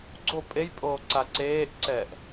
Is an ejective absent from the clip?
no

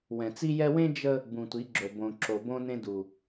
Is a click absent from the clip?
no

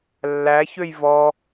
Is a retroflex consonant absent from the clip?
yes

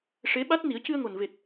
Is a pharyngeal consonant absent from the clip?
yes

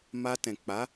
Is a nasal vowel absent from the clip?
no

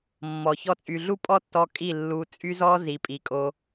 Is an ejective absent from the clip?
no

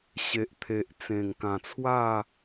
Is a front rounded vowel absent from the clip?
yes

